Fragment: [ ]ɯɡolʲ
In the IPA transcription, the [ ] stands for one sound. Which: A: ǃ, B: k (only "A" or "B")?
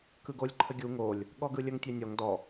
B